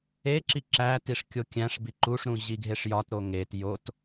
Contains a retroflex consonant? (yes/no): yes